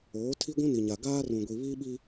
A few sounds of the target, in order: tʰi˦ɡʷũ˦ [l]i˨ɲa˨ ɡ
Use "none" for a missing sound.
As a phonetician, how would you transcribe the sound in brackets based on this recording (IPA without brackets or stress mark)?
n